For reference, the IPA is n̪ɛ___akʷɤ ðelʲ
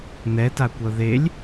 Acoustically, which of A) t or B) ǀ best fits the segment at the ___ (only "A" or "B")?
A